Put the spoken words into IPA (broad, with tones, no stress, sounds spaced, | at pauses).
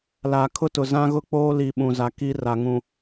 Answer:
l a˨ kʰ ʊ˦ t ʊ˨ z ã˦ ɣ ʊ˦ k͡p oː˦ l i˨ ɓ ũ˨ z a˨˦ k i˦ r a˨ ŋ ũ˨